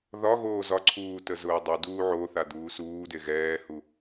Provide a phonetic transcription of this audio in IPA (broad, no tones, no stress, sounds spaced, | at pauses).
ð ɒ ɣ oː z ɒ ǀʰ uː t ə z ʊː dˤ u d uː ʕ o θ a d̪ uː s uː d e ɣ ɛː h u